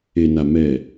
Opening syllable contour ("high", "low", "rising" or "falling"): low